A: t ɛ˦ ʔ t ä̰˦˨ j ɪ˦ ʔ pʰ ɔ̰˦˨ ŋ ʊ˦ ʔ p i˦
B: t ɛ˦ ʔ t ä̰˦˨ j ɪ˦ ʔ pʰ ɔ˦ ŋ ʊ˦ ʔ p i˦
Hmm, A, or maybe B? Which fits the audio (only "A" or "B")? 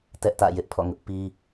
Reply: A